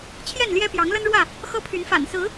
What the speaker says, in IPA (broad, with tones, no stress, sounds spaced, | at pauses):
t͡ɕʰ j ɛ˥˨ n l j ɛ˦ p j ɑ˨˦ ŋ l ə˦ n ɻ w ä˥˨ | x ɤ˦ pʰ y˨˦ n f a̰˨˩ n s ɹ̩˨˦